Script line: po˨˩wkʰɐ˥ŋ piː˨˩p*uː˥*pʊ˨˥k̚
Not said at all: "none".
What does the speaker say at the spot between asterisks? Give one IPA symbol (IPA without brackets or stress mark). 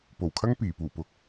uː˨˩